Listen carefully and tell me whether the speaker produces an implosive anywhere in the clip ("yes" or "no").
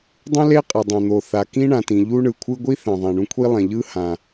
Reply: no